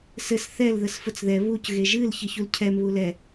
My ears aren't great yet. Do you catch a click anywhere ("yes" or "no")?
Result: no